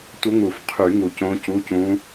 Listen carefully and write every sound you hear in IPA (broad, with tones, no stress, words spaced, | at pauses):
tʷə˧˥ŋu˨˩˦fqʰy˨˩˦ ŋu˨˩cõ˧˥cu˧˥˧cũ˧˥